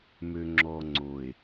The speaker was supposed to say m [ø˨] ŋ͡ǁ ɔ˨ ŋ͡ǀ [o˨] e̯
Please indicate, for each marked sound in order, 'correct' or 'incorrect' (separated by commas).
correct, correct